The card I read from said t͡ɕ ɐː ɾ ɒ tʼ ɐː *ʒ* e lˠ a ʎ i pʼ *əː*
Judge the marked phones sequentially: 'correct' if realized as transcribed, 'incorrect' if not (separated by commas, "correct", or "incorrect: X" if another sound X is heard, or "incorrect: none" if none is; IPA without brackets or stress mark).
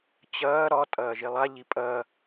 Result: correct, incorrect: ɐː